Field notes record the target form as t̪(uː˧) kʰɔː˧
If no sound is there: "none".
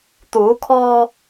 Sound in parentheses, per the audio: uː˩˧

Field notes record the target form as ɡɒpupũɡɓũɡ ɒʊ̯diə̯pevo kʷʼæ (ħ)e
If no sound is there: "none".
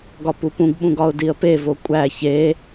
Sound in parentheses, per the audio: ç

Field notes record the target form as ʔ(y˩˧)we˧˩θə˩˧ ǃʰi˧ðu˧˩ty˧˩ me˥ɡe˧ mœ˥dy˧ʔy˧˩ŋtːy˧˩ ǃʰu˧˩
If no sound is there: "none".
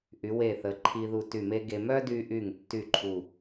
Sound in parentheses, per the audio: y˩˧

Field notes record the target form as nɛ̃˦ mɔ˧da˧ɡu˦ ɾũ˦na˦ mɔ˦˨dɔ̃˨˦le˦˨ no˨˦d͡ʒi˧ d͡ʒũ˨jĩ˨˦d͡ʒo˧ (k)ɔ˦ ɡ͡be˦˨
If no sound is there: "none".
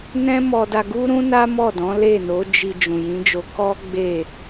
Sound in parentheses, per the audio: k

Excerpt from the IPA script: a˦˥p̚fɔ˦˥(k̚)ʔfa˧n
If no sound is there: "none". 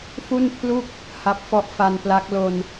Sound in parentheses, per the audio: none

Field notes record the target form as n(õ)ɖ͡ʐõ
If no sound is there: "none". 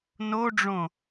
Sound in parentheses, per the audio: o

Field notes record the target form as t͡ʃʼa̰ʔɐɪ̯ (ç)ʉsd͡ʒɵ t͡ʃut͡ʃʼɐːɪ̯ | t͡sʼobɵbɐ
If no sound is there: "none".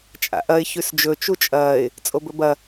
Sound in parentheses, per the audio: ç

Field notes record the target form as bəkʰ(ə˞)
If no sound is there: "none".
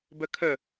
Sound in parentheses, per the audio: ə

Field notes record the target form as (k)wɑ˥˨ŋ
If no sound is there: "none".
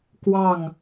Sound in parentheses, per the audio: k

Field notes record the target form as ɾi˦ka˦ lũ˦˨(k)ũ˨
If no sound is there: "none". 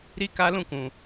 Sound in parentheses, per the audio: k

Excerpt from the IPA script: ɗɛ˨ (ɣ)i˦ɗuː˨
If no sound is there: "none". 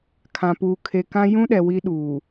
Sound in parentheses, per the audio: w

